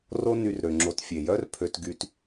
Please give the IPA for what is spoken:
r o˦ n y˨ r ɾ ø˩ ŋ͡ǁ o˨ t fʲ e˩ j œ˥ r pʰ ø˨ t ɡ y˨ t

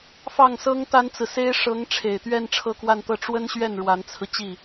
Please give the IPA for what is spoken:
f ɑ˥˩ ŋ s ɤ˥ ŋ t̪ a˥ n t͡s ɹ̩˨ s e˥ ɪ̯ ʂ ɤ˧˥ ŋ ʈ͡ʂʰ e˨˩ ɪ̯ t̪ ɥ ɛ˥˧ n ʈ͡ʂʰ ɤ˥˧ k w a˥˧ n t̪ ɤ˥˩ ʈ͡ʂ w ə˥ n ɕ ɥ ɛ˥˩ n ɻ w a˧˥ n t͡sʰ ɹ̩˧ t͡ɕ i˥˩

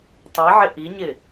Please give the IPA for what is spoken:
tˤ i ʕ ɪ ʔ i ɲ ɪ

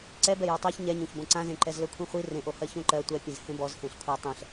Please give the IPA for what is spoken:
ǀ ɛ b ɛ j o tˤ a ç ɲ ɛ ɲ õ ç b õ ǀ ã z ẽ ǃ ɛ z l ɵ kʷʰ ĩ χʷ i r ẽ ʔ o h ɜ ç õ ǃ ɜ tʷ ɛ pʲ ɛ̃ z h ẽ b ɔ z h ẽ ɬ kʷʰ ɛ tˤ ɛ̃ ɬ

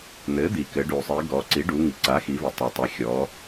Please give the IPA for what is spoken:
n̪ ɘ˩˥ d̪ i˩ k ɘ˩˧ ɖ u˩ sˤ i˩˧ ɡ ɔ˩˧ ǀ i˩˥ ɖ u˩˧ ŋ i˩ ǀ a˩˥ x i˩˧ v ɘ˩ tˤ a˩ tˤ i˩ xʲ ɔ˩˧

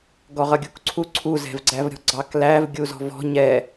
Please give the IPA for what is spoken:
ɡ ɔ ʁ ʌ ɡʲ u k ǀʰ u ǀʰ u z ɛ̤ v ɡ͡ǀ æ v ɾʲ ɔ̤ ɡ͡ǀ ɑ k l æ v ɡʲ u z ɔ̤ v ɔ̤ ɲ ɛ

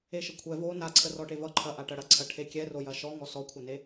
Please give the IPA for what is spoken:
e ʃ ə kʷʰ ɛ v o n a ǀʰ ə r ɔ ʈ e v ʌ ǃʰ ɐ ʔ a ʈ ɐ ɽ ɐ ǀʰ ɐ ʈʰ e kʲ ɛ r o j ɐ ʃ ɔ ŋ ɔ s ɔ kʷʰ ɐ n e

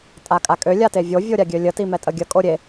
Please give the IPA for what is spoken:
tʼ a kʼ a kʼ ø lʲ a t e vʲ o vʲ o ɾʲ a ɡʲ ø lʲ ə t i m ɛ tʼ ə ɡʲ ə kʼ o ɾʲ e

